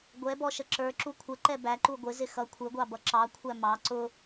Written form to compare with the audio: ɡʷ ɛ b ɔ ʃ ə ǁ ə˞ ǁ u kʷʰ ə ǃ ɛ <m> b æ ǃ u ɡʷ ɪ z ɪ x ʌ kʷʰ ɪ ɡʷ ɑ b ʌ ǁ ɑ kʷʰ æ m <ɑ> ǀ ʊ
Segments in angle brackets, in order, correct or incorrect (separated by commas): incorrect, correct